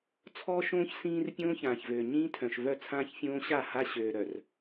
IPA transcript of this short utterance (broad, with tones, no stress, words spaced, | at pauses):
t͡sʰɔː˦ʃõː˦ç sĩː˦r pʲõː˦çãː˨çvøː˨ ɲĩː˦tʰœ̃˨ʃvœ˦˨ t͡sʰãː˦çfʲõː˦ɕa˦˨ha˦ ɕøː˨ɾœ˨r